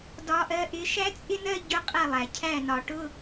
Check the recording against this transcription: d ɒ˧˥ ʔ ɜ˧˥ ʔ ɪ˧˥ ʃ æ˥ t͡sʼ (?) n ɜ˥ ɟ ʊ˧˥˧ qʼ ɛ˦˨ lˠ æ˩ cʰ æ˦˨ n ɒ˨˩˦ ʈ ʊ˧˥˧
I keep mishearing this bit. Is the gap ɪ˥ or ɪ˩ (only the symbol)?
ɪ˥